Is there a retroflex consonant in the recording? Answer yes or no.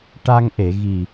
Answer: yes